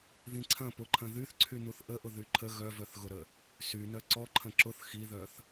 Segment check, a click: present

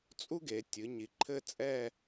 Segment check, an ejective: present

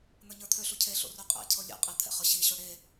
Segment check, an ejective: present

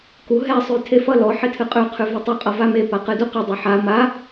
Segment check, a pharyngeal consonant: present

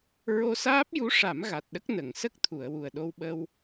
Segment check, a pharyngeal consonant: absent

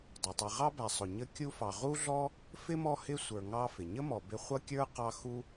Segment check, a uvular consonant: present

